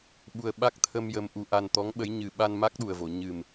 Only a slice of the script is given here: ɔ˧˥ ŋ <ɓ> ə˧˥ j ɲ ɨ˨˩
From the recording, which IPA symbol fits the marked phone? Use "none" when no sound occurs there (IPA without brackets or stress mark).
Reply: ɓ